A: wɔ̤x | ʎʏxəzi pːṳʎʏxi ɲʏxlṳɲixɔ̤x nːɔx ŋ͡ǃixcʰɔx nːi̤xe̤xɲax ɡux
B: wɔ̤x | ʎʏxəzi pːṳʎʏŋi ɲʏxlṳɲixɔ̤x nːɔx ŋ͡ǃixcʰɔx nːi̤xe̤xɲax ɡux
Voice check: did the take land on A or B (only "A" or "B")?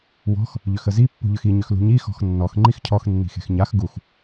A